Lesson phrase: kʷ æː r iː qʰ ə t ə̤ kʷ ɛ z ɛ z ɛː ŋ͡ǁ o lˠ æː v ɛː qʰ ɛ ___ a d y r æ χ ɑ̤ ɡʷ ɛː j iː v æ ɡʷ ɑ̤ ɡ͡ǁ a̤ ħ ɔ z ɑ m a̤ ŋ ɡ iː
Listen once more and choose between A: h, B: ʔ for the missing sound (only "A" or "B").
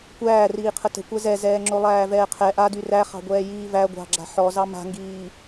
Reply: B